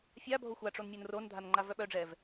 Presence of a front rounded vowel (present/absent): present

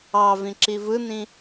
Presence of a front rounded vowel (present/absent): absent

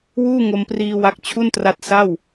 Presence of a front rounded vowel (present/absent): absent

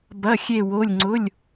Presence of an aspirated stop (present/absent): absent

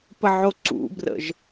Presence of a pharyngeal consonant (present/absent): present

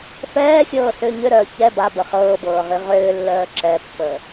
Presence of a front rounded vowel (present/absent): present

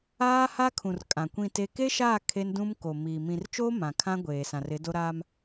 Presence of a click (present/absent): absent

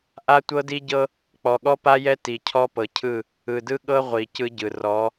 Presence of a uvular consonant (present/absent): present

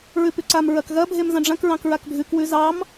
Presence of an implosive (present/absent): absent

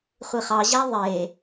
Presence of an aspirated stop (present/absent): absent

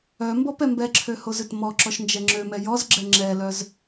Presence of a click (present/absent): present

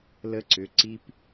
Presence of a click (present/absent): present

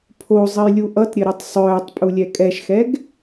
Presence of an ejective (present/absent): present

